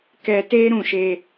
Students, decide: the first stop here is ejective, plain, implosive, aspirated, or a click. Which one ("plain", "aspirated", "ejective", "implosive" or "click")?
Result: plain